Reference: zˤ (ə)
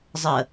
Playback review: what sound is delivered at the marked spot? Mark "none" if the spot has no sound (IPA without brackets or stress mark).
ə